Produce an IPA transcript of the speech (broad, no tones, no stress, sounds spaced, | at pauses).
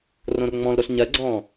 r õ r ŋ͡m ɔ̃ l ɾ o ɬ ɲ ɜ ɡ͡ǀ ɔ̃ː